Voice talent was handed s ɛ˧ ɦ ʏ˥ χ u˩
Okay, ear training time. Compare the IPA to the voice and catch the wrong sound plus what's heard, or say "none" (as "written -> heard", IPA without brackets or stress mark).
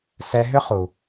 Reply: none